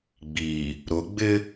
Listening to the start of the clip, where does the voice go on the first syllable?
low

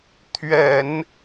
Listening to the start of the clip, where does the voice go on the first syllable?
low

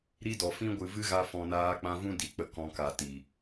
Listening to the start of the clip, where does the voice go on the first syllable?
high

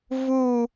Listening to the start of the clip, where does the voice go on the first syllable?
falling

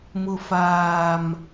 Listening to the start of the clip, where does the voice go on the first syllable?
low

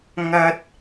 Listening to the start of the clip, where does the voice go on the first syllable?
high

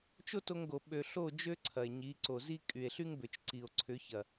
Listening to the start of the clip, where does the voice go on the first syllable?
high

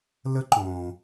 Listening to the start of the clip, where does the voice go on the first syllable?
high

